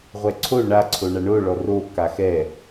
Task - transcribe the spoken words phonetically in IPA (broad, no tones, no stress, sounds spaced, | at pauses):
ʁʷ ɛ ǀʰ o ɳ a ǀʰ o ɳ a ɳ o ɭ ɔ r o k a x ɛ